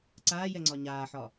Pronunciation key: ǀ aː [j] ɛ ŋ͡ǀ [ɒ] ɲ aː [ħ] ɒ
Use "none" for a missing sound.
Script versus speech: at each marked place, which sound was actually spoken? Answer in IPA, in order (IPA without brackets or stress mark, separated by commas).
j, ɒ, ħ